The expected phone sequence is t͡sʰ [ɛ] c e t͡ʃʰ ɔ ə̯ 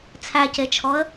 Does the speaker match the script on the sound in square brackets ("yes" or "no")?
no